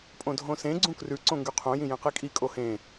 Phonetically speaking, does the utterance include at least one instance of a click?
yes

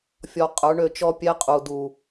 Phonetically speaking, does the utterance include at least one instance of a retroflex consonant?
yes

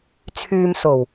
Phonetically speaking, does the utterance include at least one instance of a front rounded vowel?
yes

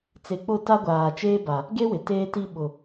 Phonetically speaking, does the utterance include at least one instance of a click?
no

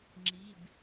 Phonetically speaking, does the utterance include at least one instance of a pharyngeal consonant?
no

